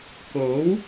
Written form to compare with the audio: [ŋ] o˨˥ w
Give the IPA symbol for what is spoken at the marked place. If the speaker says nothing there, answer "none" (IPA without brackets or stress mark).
k